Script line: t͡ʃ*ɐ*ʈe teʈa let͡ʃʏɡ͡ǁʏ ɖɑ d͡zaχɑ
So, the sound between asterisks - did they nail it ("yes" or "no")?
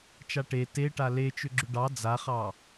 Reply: no